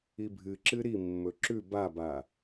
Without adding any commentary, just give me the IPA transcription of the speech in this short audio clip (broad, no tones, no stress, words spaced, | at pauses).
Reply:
ibʱɨǁɨ ɾi mːɵǁʉ baba